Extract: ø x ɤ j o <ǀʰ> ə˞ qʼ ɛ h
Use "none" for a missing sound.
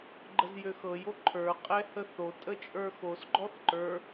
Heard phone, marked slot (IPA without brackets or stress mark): ǃʰ